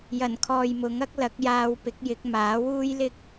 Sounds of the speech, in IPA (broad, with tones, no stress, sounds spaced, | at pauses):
j ɐ˨˩ n kʰ ɔː˨ j m ʊ˨˥ ŋ ɐ˥ k̚ l ɐ˨˥ k̚ j aː˧ w p ɪ˨˥ k̚ j ɪ˨˥ k̚ m aː˨˥ w uː˥ j l ɪ˥ k̚